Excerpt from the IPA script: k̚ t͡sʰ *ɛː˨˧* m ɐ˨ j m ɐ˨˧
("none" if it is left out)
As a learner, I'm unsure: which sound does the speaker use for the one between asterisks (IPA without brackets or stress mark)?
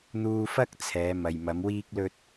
ɛː˨˧